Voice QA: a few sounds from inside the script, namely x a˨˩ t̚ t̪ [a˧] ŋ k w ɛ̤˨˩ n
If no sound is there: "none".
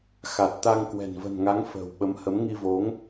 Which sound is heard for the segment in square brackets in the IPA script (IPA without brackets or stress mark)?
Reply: a˧